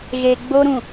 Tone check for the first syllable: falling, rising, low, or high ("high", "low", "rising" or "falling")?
low